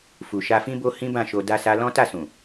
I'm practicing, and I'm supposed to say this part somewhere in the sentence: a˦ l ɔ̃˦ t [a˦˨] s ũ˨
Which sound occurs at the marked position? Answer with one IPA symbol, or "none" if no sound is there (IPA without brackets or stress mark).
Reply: a˦˨